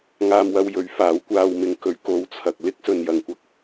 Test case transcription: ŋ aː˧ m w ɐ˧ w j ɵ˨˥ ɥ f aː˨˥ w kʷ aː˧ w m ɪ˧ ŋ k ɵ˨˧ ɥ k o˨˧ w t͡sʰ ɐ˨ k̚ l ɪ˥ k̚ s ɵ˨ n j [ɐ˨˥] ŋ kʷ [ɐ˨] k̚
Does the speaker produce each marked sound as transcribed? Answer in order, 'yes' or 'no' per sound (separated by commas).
no, no